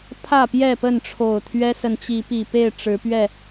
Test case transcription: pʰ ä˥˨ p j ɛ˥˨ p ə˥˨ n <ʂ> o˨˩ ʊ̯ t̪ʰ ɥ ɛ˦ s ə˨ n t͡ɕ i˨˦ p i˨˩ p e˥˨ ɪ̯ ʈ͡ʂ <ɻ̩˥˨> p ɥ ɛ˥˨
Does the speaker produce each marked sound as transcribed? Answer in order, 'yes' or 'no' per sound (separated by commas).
no, no